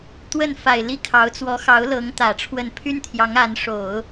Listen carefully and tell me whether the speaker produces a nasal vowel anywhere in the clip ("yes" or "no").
no